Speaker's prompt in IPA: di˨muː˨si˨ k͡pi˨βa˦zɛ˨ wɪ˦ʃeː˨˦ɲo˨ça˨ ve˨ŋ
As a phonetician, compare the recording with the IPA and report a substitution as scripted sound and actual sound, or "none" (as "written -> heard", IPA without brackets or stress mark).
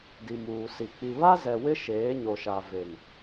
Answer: ç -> ʃ